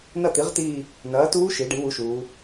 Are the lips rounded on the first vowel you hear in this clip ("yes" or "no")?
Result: no